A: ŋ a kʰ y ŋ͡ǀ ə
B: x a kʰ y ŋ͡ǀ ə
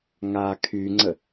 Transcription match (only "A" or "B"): A